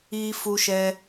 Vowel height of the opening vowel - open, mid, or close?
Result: close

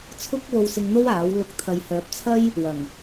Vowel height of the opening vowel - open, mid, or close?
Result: close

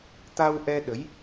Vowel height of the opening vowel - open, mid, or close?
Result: open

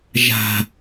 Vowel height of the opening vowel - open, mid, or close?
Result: open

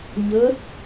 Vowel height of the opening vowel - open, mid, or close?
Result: mid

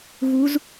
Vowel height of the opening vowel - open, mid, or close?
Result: close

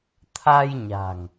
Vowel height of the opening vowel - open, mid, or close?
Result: open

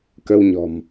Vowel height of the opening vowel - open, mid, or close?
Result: mid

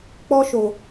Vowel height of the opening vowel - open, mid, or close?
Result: mid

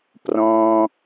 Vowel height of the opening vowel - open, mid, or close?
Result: mid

